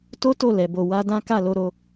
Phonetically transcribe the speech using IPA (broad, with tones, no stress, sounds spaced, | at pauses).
t o˦ t o˦˨ l ɛ˨˦ b o˧ w a˧ d ã˦ k a˦˨ l o˧ ɾ o˧